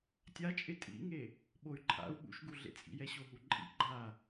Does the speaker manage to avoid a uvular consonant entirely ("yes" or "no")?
yes